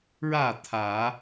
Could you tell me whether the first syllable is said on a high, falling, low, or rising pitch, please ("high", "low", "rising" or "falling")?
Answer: falling